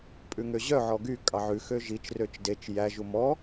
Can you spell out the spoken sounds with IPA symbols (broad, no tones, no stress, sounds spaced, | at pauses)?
pʼ ʉ ŋ ø ʑ œ ʕ ɔ ɡ y kʼ ɑ ʕ ʉ x ø ʒ i t͡ʃ r ø t͡ʃ d e t͡ʃ j æ ʒ u m ɔ